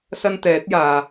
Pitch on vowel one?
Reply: high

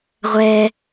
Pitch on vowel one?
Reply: high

